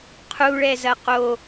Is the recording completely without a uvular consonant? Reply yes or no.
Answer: no